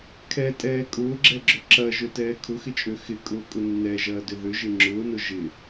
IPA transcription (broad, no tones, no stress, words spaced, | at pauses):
kʰɛtʼɛː kʼʊːɡ͡ǁɛɡ͡ǁʏ ǁɐʒøtɛː kʰʊxɪt͡ʃʼø xɪkʼʊːkʼʊ nːɛʒɐːdʏ ðʏʒɪ ŋ͡ǁʊːnʊ ʒɪ